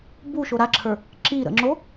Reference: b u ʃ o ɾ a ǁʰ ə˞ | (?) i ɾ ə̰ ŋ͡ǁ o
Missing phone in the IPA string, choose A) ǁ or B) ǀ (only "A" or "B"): A